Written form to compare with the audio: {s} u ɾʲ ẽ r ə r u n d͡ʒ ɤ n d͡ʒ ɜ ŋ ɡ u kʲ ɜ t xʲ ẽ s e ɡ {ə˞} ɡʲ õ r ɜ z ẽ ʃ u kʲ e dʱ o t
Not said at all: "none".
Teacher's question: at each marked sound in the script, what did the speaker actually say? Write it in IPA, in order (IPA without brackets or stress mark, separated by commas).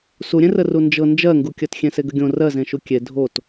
s, ə